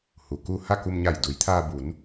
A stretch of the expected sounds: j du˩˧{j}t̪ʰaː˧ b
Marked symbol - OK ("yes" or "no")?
yes